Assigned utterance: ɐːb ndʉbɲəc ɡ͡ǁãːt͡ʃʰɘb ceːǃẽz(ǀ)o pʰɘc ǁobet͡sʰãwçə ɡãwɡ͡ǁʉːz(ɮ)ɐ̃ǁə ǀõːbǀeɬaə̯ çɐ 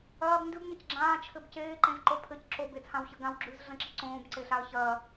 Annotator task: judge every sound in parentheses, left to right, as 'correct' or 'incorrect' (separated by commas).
incorrect, correct